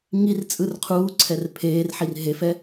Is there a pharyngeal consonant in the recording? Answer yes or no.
yes